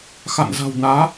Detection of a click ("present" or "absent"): absent